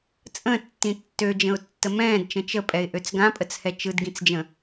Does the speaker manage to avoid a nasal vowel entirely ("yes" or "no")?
no